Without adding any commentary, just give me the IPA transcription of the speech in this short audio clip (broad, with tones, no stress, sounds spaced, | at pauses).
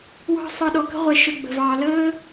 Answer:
w ɑ̤˧ sˤ ɯ˨ ɗ ɔ˨ k ə̤˧ ʁʷ ɛ˨ ʃ ə˨ ɡ͡b ə̤˨ v ɑː˨ l əː˦